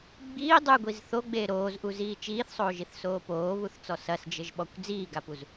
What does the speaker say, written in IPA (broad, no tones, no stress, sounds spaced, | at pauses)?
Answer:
ɡ͡b iː dˤ ɨ ɡʷ i z θ o ɡ͡b eː ɾ oː z ʔ u z iː t͡ʃ iː θ sˤ oː ʒ i θ s oː p oː β u θ t͡s ɔ s ɐ s d͡ʒ ɘ ʒ ɓ ɔ kʷ d͡z iː ɡ a p u z